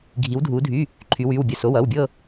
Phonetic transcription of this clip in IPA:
ɡʱi˩˧wdʱuː˩˧dʱy˩˧˩ | ǃʰy˩˧wyː˩˧˩wbʲə˩˧˩ so˩˧˩w ʌː˩˧˩wbʲɤ˦˨

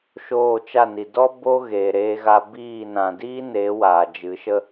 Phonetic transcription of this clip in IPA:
ʃoː˦˨t͡ʃa˦˨ni˨ dɔ˦ bo˦ɣeː˨ɾeː˧ɣa˧ biː˦˨ nã˨diː˦ne˨˦ waː˨d͡ʒɨ˨˦ʃə˦

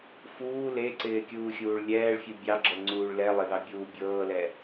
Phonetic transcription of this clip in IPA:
fuː leǀɪːkʲuːxʲuːɭ lʲɛːɭfʲu bʲɑɡ͡ǁɤŋ͡ǀuːɭ lɛ lˠɪðɑbʲuː bʲɤːlɛ

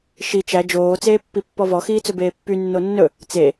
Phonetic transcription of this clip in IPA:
ʃi t͡ʃæ d͡ʒoːt͡seː pːipːɔvɔ xiːt͡sɵbeːpːy nːonːɵ | t͡se

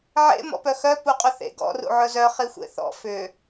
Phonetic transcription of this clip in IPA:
ʕḛ mɔ̰pœxœ puqʼɵθḛ ɡɔ̰ rṵʕɵzœ χixʷḛθɔ̰ fʏ

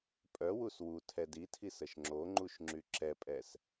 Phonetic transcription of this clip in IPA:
pʼœwus wu tʰɛditʰisəʃ ŋ͡ǁoŋ͡ǃuʃŋ͡ǁy ǁɛpʼɛs

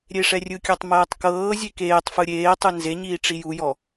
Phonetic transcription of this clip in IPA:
ɾʲeʂɛrʲɯkʲɔtˤ mɛːtˤkɤːzʲe keːtˤfɯ ɾʲeːtˤɯ nzeɲiː ʈ͡ʂijujɔ

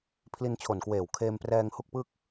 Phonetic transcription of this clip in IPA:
pʰli˧nt͡ɕʰo˨˩nkweː˨˩w kʰeː˧mprɛː˧ŋ hu˥˩k̚pɯ˥˩k̚

